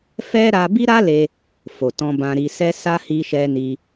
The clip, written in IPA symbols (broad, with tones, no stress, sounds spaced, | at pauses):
f ɛ˦ ɾ a˦ b i˦ ɾ a˦ l e˧ | f o˨ t ɔ̃˧ b ã˧ ɾ i˧ s ɛ˦ s a˦ h i˧ ʃ ɛ˧ n i˧